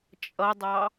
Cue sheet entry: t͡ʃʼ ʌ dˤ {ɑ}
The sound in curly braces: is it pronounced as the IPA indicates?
yes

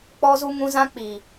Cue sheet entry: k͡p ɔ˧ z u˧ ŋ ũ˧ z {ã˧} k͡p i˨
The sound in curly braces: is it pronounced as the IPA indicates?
yes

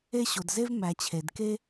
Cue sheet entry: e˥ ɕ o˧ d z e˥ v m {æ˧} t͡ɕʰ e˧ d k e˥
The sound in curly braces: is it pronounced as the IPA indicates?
yes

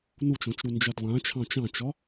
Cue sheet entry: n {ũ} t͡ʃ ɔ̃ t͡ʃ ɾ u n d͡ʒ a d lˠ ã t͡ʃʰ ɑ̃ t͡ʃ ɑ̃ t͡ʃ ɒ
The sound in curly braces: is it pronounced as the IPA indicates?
no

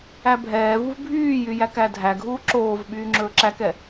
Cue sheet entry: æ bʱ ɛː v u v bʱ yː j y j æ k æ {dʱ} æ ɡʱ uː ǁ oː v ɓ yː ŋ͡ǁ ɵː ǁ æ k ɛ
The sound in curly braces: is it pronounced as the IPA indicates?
yes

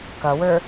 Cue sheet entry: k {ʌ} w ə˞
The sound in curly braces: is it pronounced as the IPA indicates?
yes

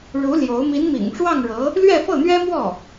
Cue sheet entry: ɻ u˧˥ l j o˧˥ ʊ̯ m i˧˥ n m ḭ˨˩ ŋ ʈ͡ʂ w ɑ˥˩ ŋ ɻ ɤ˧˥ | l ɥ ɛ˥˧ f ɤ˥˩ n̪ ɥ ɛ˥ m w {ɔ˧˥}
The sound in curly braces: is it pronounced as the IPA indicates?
no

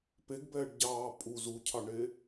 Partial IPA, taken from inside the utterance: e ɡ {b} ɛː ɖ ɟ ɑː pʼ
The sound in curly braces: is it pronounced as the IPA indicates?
yes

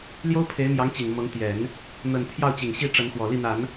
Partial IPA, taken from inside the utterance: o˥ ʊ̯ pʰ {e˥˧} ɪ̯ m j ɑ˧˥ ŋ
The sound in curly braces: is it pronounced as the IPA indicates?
no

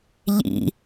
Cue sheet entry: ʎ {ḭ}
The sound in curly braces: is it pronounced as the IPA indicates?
yes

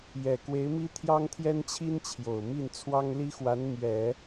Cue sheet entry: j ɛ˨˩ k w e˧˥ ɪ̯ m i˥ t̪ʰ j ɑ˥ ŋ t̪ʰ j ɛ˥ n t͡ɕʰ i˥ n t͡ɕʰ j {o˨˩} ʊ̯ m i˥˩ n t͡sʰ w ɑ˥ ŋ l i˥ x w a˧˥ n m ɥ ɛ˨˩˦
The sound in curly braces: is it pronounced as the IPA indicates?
yes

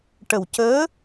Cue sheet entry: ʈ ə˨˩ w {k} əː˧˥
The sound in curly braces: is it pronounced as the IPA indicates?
no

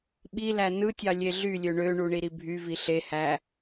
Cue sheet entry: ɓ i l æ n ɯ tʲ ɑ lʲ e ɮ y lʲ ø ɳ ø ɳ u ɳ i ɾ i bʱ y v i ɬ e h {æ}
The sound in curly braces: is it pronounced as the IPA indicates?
yes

